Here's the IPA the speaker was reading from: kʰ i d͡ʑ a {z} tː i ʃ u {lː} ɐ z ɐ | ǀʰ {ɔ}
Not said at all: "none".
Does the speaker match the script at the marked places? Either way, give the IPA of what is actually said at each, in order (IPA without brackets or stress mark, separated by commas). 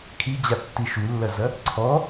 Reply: none, lː, ɔ